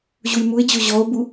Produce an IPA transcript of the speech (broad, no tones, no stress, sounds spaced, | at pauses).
ʑ u j m u e̯ d͡ʑ o ʑ ɔ o̯ b u